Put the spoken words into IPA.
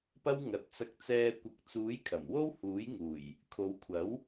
p ɐ˥ w ŋ ɐ˨ t̚ t͡s ɐ˧ k̚ t͡s ɛː˧ kʷ ɐ˨˥ k̚ t͡s uː˨˥ j kʰ ɐ˨˩ m w o˥ w h uː˨˥ j ŋ uː˨˩ j | kʰ o˨˧ w kʷʰ ɐ˨˥ w

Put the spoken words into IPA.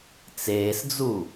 t͡s eː s d͡z u

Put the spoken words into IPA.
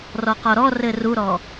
r ɔ q ɔ ɾ ɔ r ɘ r u ɾ ɔ

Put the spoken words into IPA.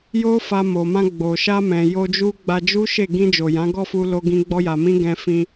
j o˦ f a˧ m o˨ m ã˧ ɡ͡b o˨ ʃ a˧ m ɛ̃˨ j o˧ d͡ʒ u˦ ɡ͡b a˧ d͡ʒ u˦ ʃ e˦˨ ɡ ĩ˧ d͡ʒ o˨ j ã˨˦ ɡ ɔ˦˨ f u˧ l o˧ ɡ ĩ˧ ɡ͡b ɔ˦ j a˧ m ĩ˦ ɡ ɛ̃˧ f ĩ˧

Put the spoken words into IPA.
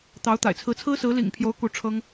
t̪ ɑ˧˥ ʊ̯ t̪ a̰˨˩ ɪ̯ t͡sʰ ɹ̩˧˥ t͡sʰ ɹ̩˥ s ɹ̩˧˥ l ḭ˨˩ ŋ pʰ j o˧˥ ʊ̯ k u˧˥ ʈ͡ʂʰ ɤ˥ ŋ

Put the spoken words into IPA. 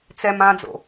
t͡s ɛ m ã d͡z o̰

